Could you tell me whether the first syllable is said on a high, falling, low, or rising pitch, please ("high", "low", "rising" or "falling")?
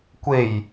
low